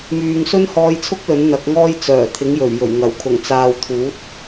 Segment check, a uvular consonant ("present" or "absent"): absent